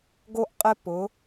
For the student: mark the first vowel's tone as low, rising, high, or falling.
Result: high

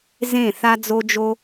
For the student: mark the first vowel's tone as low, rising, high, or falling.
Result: falling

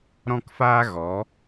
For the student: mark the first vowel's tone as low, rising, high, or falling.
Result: high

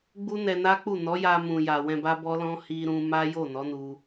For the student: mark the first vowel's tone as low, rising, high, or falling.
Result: high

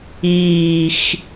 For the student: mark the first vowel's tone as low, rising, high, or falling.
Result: low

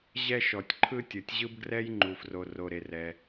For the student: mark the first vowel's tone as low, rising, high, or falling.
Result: high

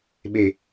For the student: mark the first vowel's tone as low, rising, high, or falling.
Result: low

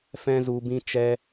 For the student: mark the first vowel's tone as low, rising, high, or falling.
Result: high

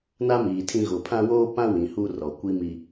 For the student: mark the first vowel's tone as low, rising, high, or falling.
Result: high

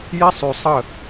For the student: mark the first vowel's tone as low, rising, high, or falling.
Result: high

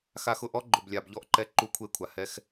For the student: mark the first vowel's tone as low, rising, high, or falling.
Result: low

